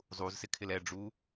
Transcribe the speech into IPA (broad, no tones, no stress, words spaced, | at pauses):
zˤuzsɪkʰɪl ɛɖ͡ʐu